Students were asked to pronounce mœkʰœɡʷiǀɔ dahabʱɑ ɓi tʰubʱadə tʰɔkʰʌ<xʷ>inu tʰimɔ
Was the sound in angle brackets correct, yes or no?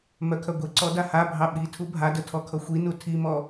yes